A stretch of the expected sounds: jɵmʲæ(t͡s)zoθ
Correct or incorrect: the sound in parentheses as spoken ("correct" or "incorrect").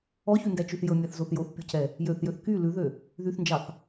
incorrect